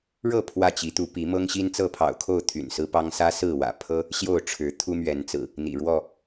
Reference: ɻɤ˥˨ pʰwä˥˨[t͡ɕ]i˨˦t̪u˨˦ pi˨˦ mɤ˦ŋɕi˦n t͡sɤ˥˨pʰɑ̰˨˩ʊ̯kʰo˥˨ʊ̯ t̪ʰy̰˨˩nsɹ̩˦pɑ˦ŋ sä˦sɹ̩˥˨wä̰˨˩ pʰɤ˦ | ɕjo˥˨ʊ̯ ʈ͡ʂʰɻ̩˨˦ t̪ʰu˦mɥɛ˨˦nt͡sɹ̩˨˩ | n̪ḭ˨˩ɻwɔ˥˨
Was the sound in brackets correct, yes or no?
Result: yes